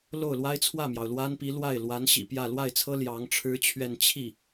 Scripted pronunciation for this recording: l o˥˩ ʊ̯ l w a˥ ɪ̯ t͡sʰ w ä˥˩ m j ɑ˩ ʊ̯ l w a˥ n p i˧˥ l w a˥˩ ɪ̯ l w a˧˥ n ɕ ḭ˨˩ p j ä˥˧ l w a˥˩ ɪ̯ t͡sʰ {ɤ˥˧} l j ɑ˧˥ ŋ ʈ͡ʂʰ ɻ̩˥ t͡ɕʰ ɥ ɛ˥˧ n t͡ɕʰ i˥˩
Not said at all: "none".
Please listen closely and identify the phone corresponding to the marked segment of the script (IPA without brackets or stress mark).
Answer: ɤ˥